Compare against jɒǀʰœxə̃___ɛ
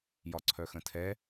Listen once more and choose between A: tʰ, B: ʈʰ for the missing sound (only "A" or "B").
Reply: A